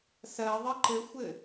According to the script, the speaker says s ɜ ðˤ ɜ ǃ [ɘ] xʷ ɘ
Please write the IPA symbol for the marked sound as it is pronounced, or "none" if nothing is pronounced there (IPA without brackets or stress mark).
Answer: ɘ